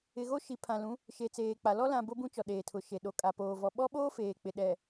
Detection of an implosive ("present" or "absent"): present